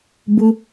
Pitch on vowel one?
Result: low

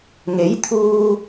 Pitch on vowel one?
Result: rising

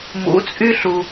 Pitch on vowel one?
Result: rising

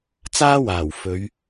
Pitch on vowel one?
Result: high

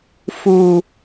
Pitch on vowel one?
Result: low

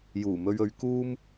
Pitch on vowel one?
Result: low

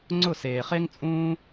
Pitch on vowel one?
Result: falling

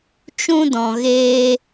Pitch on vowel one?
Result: high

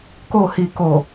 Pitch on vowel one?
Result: falling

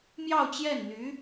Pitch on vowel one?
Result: falling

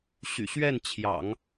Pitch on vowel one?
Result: low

